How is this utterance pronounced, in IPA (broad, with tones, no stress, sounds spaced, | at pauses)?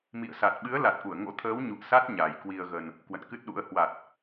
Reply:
m ḭ˧˨ ə̯ s a˨˩ t̚ ɓ ɨ˨˦ ə̯ l a˨˩ t̚ ʔ u˧˩ ə̯ ŋ o̰˧˥ t̪ʰ əː˨˦ w ɲ ṵ˧˨ ə̯ s a˦˥ t̚ ɲ a˨˩ j k w i˧ ə̯ ɣ ə˧ n | k w ə̰˧˨ n k ɨ˦˥ t̚ ɗ ṵ˧˥ ə̯ h w a˨˩ t̚